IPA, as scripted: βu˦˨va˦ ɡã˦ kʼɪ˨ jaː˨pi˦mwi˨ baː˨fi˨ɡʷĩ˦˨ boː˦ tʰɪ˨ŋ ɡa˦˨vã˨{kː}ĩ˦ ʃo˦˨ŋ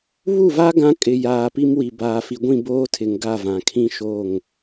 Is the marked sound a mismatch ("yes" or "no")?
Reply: yes